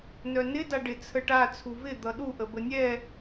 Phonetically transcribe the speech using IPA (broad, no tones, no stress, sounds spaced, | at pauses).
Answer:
n œ n ɪ d a ɖ ɪ t͡sʰ ə ʈ a t͡sʰ u v ɪ d̪ ʌ ɗ u ʔ ə b ə nʲ ɛ